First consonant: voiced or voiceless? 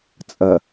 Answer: voiceless